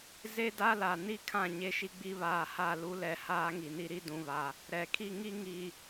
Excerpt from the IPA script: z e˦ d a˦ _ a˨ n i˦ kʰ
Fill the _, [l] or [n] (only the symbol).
l